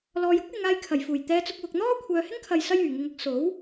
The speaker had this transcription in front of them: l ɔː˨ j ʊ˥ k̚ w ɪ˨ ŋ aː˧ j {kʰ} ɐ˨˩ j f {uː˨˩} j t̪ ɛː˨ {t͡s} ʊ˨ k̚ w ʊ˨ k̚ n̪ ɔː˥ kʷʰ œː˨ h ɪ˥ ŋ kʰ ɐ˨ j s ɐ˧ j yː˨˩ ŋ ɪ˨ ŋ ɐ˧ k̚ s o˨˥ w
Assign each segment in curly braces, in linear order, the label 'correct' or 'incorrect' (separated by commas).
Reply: correct, correct, correct